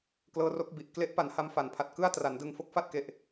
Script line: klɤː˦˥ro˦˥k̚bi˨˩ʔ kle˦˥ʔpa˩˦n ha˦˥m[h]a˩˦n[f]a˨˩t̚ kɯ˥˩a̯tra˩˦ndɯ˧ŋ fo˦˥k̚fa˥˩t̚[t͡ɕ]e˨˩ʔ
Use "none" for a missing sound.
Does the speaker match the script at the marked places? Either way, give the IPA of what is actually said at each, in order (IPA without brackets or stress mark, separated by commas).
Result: f, pʰ, k